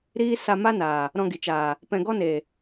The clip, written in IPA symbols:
ɾ iː˦ s a˧ m a˦ n aː˨ | ɾ ɔ̃˧ ɡ i˨ t͡ʃ aː˨ | p ɛ̃˧ ɡ ɔ˦ n eː˨

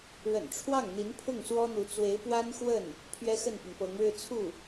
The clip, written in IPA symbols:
ɻ ə̰˨˩ n ʈ͡ʂʰ w ɑ˥˩ ŋ n̪ i˧˥ n pʰ ʊ˥˩ ŋ s w ɔ˥ n̪ u˧˥ t͡s w e˧˥ ɪ̯ p w a˥ n x w ə˥˩ n | pʰ ɥ ɛ˥ x ə˥˩ n p i˩ ŋ p ɤ˧˥ ŋ ɻ ɻ̩˥˧ t͡sʰ u˥˩

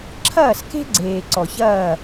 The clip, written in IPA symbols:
ǁʰ ɐː˦˨ s k e̤˦ ɡ͡ǀ eː˨ ǀ ɔ˨ ç ɐː˦˨

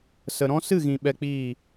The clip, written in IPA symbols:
s ə˨ ɾ ɔ̃˦ s ɨ˦˨ ɣ ĩ˨ ɓ ɛ˧ k͡p iː˦˨

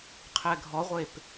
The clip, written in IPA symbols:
qʰ ɛ ɡʱ ɔ ʁʷ e p

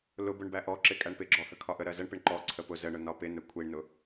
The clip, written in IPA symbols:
l ʊ b ʊ ɳ b æ ʔ ɔ ǁ ɪ kʼ æ ɳ p ɪ ɡ͡ǁ ɔ h ə kʰ ɒ ʔ ə ɾ ɜ z ə ɳ p ɪ ɳ ǃ ɔ ǀʰ ə p ʊ z ə ɳ ʊ n ɒ p ɪ n ə kʷʰ i ɳ n ʊ

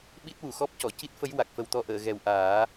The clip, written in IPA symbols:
ɓ i˦˥ t̚ w u˨˩˨ x ɔ˦˥ p̚ c ɔ˨˩˨ c i˦˥ t̚ f ə˧˥ j w a˨˩ k̚ f ə˨˩ w t̪ ɔ˧ ʔ əː˨˩˨ ɣ ɛ˨˩ w ʔ aː˨˩˦

